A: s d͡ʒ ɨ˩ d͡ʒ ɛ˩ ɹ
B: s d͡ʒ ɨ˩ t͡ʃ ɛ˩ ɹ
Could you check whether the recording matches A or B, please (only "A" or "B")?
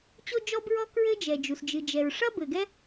A